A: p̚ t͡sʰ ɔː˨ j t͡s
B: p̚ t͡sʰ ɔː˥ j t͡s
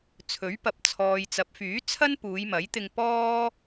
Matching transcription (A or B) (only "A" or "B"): A